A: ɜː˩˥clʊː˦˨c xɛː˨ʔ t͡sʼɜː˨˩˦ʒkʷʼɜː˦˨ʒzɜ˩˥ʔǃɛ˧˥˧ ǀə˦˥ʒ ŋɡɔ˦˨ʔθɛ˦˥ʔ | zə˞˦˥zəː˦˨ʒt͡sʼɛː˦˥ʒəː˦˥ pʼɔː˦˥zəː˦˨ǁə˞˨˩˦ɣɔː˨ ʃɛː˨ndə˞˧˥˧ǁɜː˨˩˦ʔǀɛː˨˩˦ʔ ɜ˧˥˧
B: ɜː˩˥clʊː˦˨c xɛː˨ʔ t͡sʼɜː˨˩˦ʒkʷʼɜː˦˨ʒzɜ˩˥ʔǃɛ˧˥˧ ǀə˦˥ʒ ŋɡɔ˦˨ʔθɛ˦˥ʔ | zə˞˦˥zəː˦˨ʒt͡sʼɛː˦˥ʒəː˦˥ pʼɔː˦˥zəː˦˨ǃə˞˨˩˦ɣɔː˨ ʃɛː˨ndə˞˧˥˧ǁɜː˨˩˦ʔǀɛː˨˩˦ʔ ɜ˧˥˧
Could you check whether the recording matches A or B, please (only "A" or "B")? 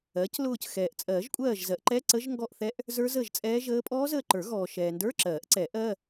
B